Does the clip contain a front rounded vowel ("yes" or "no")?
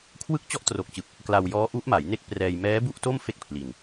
no